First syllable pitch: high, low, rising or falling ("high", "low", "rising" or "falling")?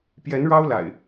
rising